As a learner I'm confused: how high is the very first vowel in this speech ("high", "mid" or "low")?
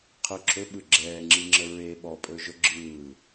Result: high